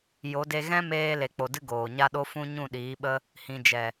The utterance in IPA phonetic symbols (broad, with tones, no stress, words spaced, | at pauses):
jo˨˦de˧ ɣɛ̃˦meː˧ le˨k͡po˨dɨ˧ ɡoː˨ɲa˦ɗo˦ fũ˦ ɲũ˦˨ɗiː˨˦ɓə˦ | hĩ˨d͡ʒɛ˨